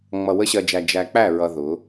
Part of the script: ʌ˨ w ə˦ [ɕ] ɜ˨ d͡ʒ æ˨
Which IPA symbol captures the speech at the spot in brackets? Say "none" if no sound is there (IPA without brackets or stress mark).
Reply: ɕ